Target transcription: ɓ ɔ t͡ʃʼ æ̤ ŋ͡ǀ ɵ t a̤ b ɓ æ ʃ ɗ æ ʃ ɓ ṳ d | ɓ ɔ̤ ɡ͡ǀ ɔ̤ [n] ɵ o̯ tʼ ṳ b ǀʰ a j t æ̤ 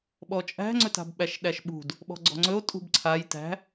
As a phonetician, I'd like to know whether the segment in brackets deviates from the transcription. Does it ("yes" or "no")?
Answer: yes